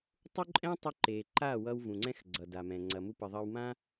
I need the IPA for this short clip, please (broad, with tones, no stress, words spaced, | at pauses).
tˤu˦ǃʼɛ̃˦ tˤu˧ǃe˨ ǃa˦˨ wʌ˧w vũ˨ŋ͡ǀɛ̃˦x ɡ͡ǀʌ˨da˨mɛ̃˨ ŋ͡ǀɐ˨ mu˦pə˧ ðˤɐ˧wmã˦